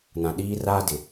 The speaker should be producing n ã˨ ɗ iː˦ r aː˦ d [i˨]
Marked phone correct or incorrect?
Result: incorrect